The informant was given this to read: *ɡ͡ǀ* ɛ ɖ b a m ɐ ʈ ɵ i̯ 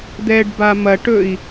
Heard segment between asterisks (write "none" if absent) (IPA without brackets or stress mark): d̪